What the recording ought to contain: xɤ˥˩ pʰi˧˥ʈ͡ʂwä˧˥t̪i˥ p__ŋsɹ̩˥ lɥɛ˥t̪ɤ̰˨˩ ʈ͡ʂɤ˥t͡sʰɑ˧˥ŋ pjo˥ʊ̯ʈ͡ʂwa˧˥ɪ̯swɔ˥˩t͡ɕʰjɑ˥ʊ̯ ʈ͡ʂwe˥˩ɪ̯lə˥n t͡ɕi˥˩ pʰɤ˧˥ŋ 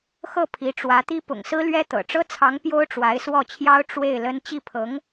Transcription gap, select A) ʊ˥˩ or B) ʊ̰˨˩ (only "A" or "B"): B